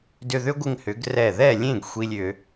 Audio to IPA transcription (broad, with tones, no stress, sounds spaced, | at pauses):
d ʏ˧ ð ʏ˦˥ ɡʷ ɪ˧ ŋ h ʏ˩˧ ɡ r ɛ˧˩ ð ɛ˥˨ lʲ ẽ˥˨ ɡ xʷ i˧ lʲ ʏ˩˧